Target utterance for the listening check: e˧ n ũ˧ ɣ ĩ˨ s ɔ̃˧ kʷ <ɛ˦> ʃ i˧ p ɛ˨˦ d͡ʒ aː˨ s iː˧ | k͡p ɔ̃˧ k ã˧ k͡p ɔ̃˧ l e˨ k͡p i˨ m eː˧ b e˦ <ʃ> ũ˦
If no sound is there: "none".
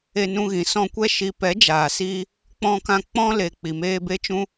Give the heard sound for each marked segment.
ɛ˦, t͡ʃ

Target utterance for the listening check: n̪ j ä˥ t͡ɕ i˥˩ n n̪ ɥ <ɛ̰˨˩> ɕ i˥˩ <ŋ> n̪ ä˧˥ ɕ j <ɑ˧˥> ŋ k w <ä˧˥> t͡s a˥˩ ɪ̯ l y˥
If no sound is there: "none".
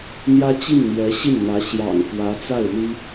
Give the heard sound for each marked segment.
ɛ˧˥, n, ɑ̰˨˩, ä˧˥

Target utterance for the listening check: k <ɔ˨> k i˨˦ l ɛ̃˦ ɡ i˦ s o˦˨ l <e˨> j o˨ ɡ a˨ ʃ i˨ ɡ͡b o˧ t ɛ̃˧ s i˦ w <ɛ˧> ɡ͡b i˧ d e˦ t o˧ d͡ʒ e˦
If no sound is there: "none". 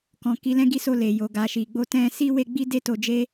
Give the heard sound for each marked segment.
ɔ̃˨, e˨, e˧

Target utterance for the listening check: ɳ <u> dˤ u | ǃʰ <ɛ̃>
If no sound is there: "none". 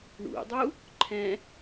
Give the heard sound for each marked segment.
ṵ, ɛ̃

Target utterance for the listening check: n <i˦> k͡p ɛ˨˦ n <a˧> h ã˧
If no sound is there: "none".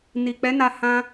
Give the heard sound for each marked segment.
i˨, a˧

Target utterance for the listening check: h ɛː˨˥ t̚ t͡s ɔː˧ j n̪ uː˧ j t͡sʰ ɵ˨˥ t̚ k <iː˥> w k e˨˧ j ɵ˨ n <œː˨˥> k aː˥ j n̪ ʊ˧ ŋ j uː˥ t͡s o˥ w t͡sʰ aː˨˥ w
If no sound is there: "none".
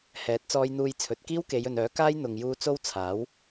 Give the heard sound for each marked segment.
iː˥, œː˨˥

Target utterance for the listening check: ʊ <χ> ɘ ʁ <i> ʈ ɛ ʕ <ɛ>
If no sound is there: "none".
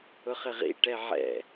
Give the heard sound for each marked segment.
χ, ḭ, ɛ̰

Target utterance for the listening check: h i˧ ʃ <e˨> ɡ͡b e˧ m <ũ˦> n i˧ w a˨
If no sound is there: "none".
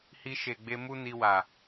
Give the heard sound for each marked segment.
e˨, u˦

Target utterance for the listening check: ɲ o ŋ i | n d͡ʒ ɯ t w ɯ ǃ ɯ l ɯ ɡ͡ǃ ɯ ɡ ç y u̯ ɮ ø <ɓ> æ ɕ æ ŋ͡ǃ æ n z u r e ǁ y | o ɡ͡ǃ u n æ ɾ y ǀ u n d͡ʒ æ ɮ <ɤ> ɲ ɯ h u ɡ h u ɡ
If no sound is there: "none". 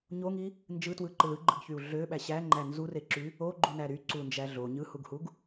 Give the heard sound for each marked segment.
ɓ, o

